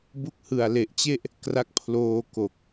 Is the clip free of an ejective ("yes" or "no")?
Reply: yes